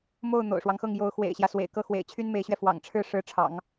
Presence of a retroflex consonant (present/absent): present